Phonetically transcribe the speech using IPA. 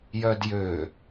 j œ d j ø

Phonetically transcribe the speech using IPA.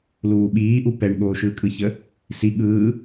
l uː ɓ iː ʔ u p ɛ ɳ ɠ oː ʃ ɯː kʼ ɯ ç ə | s i ɠ ɯː

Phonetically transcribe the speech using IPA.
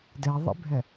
d ɛ ðˤ ḭ bʱ ɛ

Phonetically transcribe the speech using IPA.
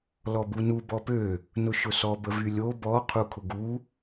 l ɔ b u n u b ɔ p ø | n ʊ ʃ ʊ s ɔ b ə v y lʲ o b ɔ qʰ u kʰ ʊ ɡ u

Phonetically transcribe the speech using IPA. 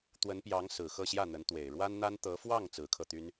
t̪ w ə˧˥ n p j ɑ˧˥ ŋ s ɹ̩˨˩ x ɤ˥˧ ɕ j ä˥˩ n̪ ə˧˥ n t̪ w e˨˩ ɪ̯ ɻ w a˥ n n̪ a˥ n t̪ ɤ˧˥ f w ɑ˥˩ ŋ t͡s ɹ̩˧˥ kʰ ɤ˧ t̪ y˥ n

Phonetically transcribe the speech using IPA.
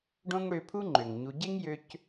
ɖ õ˦ ŋ ɽ ø˧ pʰ u˦ ŋ͡ǃ ø˨ ŋ ɲ u˧ ɟ e˦ ŋ j ø˧ c

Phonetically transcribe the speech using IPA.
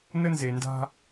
n ə˦ n z e˨ n d a̤˦

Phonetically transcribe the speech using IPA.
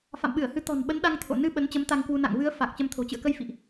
f a̰˧˨ m ɓ ɨ˧˩ ə̯ h ɨ˨˦ t̪ ɔ̤˨˩ n ɓ ə˨˦ n ɗ a˧ ŋ t̪ʰ o̰˧˨ n ɨ˧ ɓ ə˨˦ n t͡ɕ ə˨˦ m t̪ a˧ ŋ k w u˧ n a̰˧˨ ŋ v ɨ˨˦ ə̯ f a˨˩ k̚ t͡ɕ ə˧ m t̪ʰ o̤˨˩ t͡ɕ ɨ̰˧˨ ə̯ k ə˧ j f ḭ˧˨ ʔ

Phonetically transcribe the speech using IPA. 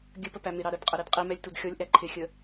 ɡʲ ə p ə p æ m ɪ ɾ ɑ ɾ ə d qʼ ə ɾ i d qʼ i m ɛ lʲ t u d xʲ ɔ lʲ ʔ æ ǃʰ ɪ xʲ ə

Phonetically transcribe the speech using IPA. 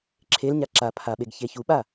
ǁʰ e l ɲ a ǁ a pʰ a ɓ e ɡ ç e ç u ɓ a

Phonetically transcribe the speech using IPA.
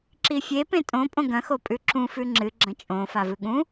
ǁ i fʲ e p ẽ tʼ õ pʼ õ ɡ ɐ̃ x o pʼ ʉ ǁ ũ f ʉ ŋ͡ǁ ɨ ɡ͡ǁ ɐ̃ t͡ʃʼ õ f a v ɨ ɠ ũ

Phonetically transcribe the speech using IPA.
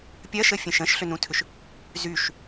pʲ ɐ ʃ ə fʲ ə̃ ʃ ə̃ ʃ ɬ ʏ n ũ tʰ ʏ ʃ | z y ʃ

